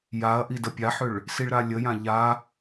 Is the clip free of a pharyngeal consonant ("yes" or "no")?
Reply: no